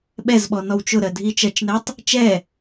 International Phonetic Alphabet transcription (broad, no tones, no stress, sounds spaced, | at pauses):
ɓ ɛ z ɓ ɔ n ɔ w t͡ʃ ʊ ɾ ɜ dʱ i t͡ʃ ɜ t͡ʃ n ɛ tˤ | t͡ʃ ɛ